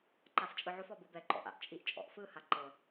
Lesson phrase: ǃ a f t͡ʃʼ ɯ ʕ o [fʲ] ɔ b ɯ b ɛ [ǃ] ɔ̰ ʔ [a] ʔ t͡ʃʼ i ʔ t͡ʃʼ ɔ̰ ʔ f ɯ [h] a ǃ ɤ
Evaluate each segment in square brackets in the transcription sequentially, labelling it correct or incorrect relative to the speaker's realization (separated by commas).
incorrect, correct, incorrect, correct